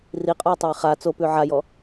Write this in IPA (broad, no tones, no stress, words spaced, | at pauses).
riqʼɔjtˤaj χa t͡sopʉ ʕajɔ